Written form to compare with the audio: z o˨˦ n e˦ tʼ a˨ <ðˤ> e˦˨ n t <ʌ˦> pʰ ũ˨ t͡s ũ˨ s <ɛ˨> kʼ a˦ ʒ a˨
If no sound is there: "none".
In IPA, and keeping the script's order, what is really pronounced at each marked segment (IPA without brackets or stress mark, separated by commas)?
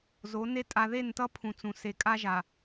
ð, ʌ˦, e˨